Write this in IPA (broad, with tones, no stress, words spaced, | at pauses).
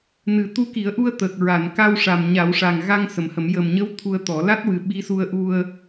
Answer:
nɨ˨˩˦ t̪u˧˥ki˨˩˦ə̯ʔu˧ə̯ t̪əː˨˩k̚ ɹa˨˩˨n ka˧wʂa˨˩mɲa˨˩˦w ʂa˨˩ŋɣa˧ŋ sə˨˩˦mhə˨˩˦m jə˨˩mɲə˧˥w t̪ʰu˧ə̯t̪ɔ˨˩˦ la˦˥t̚ wɨ˨˩ ɓi˧˥su˧ə̯ʔu˧ə̯